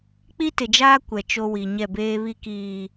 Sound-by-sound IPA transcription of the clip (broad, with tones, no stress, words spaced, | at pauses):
k͡pi˦tɪ˨d͡ʒaː˦ kʷɛ˨t͡ʃo˦wi˨ ɲɛ˦˨beː˦ βi˦kiː˨